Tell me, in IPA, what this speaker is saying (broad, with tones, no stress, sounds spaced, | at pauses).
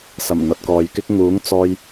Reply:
s ɐ˨˩ m n̪ ɐ˨ t̚ k ɔː˨ j k ɪ˥ k̚ ŋ uː˨˥ ŋ t͡s ɔː˧ j